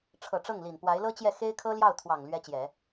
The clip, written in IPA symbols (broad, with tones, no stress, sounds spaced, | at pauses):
ʈ͡ʂʰ ɤ˨˩ ʈ͡ʂ ɤ˥˩ ŋ l i˨˩ n p w a˧˥ ɪ̯ l ɤ˥ t͡ɕ j ɛ˥˩ x e˥ ɪ̯ kʰ ɤ˥ l j ɑ˥˩ ʊ̯ t̪ʰ w ɑ˨˩ ŋ l ɥ ɛ˥ t͡ɕ j ɛ˨˩˦